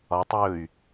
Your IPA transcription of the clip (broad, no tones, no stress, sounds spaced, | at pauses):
ɒ tˤ j ɵ y̯